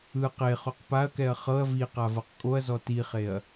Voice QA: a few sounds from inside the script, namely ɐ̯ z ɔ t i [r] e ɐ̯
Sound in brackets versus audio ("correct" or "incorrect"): incorrect